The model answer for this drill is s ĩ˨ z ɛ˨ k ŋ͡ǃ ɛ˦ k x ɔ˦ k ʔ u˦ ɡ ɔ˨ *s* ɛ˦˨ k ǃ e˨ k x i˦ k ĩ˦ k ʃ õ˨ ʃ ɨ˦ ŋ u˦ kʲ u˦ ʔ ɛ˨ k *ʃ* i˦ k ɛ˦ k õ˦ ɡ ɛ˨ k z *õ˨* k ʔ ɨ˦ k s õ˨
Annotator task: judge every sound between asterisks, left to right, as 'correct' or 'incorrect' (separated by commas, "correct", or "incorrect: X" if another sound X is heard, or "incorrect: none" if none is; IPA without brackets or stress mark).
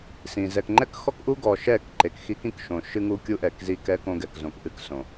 incorrect: ʃ, incorrect: z, correct